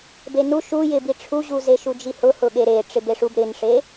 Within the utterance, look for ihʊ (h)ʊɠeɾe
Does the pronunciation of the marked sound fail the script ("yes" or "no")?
no